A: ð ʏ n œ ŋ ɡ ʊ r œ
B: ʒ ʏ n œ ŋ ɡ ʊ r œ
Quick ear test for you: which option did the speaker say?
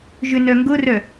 B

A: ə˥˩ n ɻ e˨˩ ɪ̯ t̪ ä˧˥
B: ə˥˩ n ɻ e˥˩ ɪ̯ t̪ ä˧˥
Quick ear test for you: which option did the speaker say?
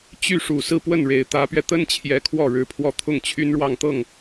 A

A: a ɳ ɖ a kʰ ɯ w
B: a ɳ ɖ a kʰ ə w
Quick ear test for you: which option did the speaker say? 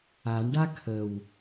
B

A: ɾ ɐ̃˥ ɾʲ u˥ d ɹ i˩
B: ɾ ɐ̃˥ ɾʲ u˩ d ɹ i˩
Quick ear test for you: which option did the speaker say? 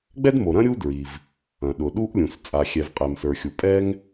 A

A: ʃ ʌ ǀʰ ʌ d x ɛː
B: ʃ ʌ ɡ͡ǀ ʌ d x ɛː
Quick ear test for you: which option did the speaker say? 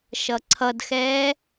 A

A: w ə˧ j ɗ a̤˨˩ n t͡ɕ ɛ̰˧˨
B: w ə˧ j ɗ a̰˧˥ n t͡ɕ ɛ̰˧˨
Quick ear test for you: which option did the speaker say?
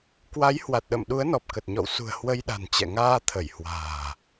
A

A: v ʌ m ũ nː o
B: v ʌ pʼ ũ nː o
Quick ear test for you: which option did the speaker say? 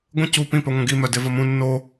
A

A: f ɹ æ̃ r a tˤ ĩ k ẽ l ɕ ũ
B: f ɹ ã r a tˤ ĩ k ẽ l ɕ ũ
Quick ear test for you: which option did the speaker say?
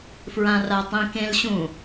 B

